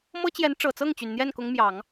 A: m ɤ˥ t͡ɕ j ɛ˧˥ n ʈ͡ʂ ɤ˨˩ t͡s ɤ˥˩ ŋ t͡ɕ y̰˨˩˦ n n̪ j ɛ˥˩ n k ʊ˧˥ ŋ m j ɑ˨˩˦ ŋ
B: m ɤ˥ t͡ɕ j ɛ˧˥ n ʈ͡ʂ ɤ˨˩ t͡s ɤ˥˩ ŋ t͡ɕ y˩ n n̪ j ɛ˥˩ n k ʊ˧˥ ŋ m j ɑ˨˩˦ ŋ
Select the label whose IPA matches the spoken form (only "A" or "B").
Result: B